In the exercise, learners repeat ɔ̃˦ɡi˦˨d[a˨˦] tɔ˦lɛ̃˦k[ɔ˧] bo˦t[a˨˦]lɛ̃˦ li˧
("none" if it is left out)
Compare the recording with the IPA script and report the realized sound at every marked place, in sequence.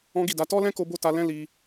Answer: a˨˦, o˧, a˧

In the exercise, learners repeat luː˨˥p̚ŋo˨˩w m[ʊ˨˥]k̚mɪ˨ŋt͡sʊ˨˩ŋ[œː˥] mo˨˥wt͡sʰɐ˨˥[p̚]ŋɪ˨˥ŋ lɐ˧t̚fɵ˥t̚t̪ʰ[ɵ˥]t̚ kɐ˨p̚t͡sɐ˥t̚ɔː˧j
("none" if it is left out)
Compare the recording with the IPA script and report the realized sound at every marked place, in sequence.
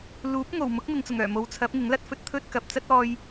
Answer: ʊ˨˥, œː˨˩, p̚, ɵ˥

